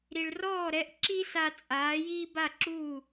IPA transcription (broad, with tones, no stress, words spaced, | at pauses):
ɾi˩ɭrɔː˥˩ɾɛ˧ʔ ǁi˥sa˧ t͡sʼaː˩˥jiː˥ ba˥˩ǁuː˥˩